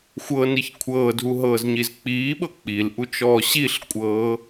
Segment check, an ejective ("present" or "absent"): present